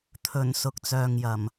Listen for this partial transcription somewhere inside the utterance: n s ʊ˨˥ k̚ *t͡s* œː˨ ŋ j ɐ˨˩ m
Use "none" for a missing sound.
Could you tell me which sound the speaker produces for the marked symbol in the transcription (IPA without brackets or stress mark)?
t͡s